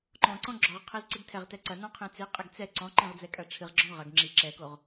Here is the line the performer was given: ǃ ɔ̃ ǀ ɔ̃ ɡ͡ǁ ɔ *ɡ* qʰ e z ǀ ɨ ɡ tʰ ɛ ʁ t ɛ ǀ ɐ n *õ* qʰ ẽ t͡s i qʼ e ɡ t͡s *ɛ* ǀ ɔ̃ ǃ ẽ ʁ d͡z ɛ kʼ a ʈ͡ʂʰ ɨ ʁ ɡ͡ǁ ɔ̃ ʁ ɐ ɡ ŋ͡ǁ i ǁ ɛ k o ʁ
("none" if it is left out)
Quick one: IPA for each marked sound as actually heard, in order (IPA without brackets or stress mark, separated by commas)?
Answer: ʁ, ɔ̃, ɛ